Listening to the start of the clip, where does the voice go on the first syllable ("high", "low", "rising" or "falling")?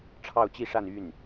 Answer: falling